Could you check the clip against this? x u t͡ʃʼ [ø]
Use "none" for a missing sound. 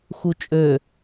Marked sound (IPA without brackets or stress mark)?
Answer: ø